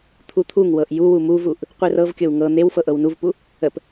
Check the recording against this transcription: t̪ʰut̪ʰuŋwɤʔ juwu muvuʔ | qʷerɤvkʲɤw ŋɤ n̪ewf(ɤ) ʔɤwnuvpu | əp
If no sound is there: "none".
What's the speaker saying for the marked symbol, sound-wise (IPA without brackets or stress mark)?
ɤ